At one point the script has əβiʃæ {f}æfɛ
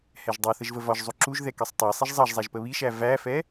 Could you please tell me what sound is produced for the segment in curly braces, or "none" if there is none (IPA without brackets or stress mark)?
v